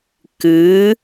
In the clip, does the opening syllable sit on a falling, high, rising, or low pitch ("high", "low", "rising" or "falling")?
rising